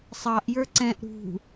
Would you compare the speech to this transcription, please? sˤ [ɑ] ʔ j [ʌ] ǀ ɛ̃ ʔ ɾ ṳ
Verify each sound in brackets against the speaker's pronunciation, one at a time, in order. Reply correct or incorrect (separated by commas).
correct, incorrect